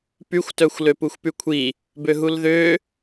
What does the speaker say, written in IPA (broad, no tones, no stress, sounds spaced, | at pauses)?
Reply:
p y xʷ t œ xʷ l ø p u xʷ p y kʷʰ i | b ø ɦ u l ð ø